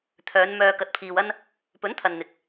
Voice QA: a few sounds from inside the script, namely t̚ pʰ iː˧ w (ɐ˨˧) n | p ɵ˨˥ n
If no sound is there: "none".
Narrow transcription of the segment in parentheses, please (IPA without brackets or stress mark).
ɐ˥